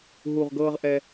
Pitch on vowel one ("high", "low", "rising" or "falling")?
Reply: low